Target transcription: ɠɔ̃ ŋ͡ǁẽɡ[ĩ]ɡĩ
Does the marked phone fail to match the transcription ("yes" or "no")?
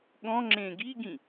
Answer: yes